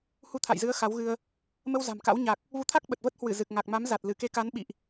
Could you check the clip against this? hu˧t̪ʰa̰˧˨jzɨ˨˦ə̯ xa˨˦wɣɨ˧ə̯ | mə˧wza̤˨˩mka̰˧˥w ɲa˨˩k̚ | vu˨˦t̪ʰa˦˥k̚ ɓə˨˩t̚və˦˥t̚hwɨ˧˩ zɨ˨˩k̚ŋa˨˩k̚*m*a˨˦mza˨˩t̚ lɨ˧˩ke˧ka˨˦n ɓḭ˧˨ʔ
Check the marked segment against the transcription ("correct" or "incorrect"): correct